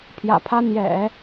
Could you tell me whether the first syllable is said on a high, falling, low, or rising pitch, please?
low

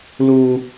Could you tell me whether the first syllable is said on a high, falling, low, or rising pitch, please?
high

